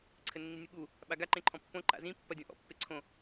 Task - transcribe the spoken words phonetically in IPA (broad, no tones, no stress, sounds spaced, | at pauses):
ǀʰ ɘ nː i nʲ u ɠ u | ɓ a ɡ a ǃ ẽ ǃʰ ɔ̃ pː õ ǃ a̰ z ĩ pː ɐ dʲ ɔ̃ ʔ ɔ̰ pː e ǀʰ õ